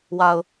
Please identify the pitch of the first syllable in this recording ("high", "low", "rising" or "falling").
low